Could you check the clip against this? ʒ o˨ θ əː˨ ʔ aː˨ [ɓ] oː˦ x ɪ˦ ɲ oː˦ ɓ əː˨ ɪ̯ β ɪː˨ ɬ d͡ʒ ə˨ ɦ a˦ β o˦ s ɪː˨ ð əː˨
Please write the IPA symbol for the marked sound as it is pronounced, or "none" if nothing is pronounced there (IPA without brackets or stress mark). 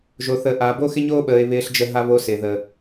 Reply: b